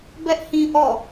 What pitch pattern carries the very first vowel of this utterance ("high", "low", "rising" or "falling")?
high